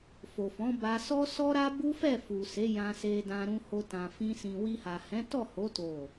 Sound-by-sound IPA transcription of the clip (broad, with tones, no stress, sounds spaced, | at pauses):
f o˨ f ɔ̃˨˦ b a˧ s ɔ˦ s ɔ˦ ɾ a˦ b u˦ f ɛ˦˨ f u˨ s e˨˦ j ã˧ s e˧ d ã˧ ɾ ũ˧ h o˧ t ã˨ f ĩ˧ s ĩ˨ w i˧ h a˨ h ɛ̃˨˦ t ɔ˦˨ h o˨˦ t o˦˨